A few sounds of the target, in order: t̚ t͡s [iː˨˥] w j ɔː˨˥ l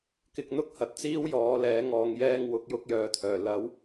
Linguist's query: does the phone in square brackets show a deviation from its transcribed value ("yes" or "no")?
yes